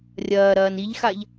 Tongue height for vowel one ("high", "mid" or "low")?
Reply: low